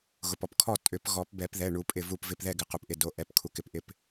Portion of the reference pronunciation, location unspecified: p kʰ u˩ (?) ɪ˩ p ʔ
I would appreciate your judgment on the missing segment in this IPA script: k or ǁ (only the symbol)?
k